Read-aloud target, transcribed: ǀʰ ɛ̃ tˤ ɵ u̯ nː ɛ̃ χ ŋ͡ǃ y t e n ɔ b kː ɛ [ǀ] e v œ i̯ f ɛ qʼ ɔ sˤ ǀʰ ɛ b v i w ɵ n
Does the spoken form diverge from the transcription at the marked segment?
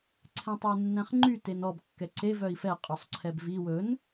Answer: no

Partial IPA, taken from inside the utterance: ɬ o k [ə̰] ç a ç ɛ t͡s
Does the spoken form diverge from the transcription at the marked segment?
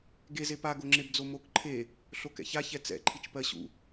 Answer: yes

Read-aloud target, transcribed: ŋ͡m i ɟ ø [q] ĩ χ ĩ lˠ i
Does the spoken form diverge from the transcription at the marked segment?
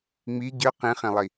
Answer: no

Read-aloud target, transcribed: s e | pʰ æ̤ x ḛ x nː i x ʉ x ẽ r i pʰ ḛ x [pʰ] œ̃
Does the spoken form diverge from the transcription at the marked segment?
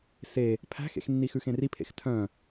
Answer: yes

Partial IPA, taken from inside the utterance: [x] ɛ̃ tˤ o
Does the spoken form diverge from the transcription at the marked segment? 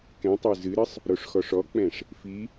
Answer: yes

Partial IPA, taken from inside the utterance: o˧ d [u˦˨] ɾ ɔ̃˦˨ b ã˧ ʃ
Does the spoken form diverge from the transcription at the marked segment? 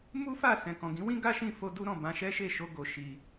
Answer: yes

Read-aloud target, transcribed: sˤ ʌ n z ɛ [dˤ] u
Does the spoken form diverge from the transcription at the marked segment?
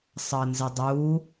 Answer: no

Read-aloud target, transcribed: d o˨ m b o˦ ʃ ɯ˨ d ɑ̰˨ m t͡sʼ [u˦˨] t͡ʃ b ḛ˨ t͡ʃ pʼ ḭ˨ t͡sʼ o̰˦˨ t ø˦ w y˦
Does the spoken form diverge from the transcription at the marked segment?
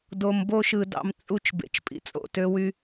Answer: no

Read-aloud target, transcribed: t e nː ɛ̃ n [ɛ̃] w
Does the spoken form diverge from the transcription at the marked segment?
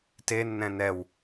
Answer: yes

